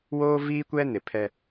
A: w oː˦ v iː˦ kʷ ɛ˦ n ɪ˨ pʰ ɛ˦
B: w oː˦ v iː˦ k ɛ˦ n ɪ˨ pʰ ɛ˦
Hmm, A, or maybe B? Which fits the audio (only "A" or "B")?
A